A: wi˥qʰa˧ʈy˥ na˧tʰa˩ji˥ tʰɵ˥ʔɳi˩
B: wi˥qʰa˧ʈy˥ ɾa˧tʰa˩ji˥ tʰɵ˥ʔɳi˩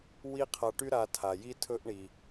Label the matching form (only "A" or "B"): B